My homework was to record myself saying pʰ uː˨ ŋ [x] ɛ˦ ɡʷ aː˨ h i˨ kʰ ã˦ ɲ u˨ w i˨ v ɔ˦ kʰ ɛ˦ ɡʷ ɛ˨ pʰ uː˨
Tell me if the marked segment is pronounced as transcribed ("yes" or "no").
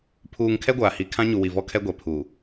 no